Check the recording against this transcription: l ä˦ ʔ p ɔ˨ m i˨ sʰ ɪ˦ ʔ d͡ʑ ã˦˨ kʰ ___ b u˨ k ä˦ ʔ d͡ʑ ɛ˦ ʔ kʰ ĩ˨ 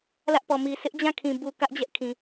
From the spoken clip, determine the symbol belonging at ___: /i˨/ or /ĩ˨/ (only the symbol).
ĩ˨